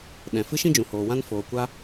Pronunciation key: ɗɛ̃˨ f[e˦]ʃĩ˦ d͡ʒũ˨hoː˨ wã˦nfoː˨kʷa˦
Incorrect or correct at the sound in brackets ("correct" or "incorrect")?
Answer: incorrect